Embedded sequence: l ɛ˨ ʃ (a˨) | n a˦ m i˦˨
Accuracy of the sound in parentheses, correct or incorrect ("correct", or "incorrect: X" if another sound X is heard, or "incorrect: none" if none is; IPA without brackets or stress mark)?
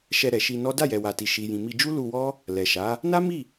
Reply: incorrect: a˨˦